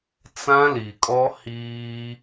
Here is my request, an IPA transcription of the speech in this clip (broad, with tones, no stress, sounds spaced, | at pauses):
t͡s ã˦ l i˨ kʼ ɔ˦ h iː˦